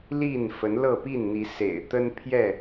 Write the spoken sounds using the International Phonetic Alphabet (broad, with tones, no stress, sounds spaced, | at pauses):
l i˥˨ n f ə˨˦ n l ɤ˥˨ p i˥˨ n n̪ i˨˦ s ḛ˨˩ ɪ̯ t̪ ə˦ n pʰ j ɛ˥˨